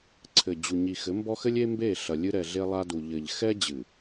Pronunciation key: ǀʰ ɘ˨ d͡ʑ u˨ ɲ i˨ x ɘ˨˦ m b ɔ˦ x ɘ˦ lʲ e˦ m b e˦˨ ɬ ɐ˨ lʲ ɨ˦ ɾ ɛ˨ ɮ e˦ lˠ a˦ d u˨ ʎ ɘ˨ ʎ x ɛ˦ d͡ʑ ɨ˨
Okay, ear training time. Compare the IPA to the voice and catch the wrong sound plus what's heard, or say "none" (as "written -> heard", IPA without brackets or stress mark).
none